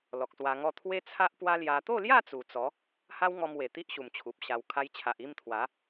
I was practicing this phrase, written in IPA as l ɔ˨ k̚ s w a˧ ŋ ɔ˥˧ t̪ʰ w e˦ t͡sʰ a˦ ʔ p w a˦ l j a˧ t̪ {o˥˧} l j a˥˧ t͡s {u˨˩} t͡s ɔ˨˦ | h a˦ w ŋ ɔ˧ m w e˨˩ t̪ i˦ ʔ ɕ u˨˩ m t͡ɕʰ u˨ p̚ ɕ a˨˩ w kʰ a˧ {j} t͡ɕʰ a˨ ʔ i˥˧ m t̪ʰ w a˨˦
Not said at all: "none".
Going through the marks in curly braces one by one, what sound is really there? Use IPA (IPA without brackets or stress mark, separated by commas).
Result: o˥˧, u˨˩, j